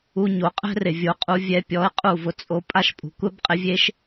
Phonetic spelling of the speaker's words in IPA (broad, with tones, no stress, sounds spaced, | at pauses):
u˧ ɲ o˨˦ qʼ ɛ̤˦ r ɪ˨ vʲ o˨˦ qʼ u˧ vʲ ɛ˧ pʲ ɔ˨˦ ɪ̯ qʼ u˦˨ v ʊ˧ t͡sʼ o˧ pʼ a˦ ʃ pʼ ṳ˨ kʷ ɛ˦ b qʼ ɪ˧ vʲ e˦ ʃ